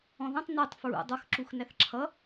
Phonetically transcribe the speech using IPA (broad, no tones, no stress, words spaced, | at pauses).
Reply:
ɔ̃ðə̃tˤ netˤ fɹṵ dˤʌxǁux næθǁʰʌ